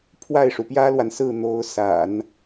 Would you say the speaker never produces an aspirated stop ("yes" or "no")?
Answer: no